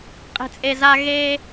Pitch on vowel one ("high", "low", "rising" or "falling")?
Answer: low